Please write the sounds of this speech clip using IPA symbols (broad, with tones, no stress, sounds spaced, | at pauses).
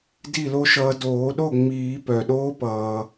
d i˥˩ l o˦˥ ʃ ʌː˧ d oː˨˩˦ ɗ o˥˩ ŋ͡m iː˨˩˦ p œ˩ ɗ oː˦˥ p ʌː˩